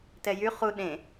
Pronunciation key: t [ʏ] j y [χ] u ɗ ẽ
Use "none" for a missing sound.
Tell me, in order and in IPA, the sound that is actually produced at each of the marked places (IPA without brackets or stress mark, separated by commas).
ɛ, χ